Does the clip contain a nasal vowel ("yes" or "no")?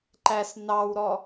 no